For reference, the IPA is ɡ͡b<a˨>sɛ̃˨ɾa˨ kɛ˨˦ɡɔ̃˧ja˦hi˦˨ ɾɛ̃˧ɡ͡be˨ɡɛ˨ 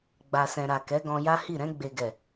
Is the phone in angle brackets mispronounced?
no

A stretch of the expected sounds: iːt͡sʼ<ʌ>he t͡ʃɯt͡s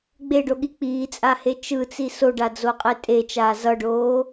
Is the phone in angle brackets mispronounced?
yes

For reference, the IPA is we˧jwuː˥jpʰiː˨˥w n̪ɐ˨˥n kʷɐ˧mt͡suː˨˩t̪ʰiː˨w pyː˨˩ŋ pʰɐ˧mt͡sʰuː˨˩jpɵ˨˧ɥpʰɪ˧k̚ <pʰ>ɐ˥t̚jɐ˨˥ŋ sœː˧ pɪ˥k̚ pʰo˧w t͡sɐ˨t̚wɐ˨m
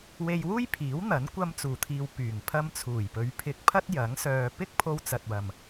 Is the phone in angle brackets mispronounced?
no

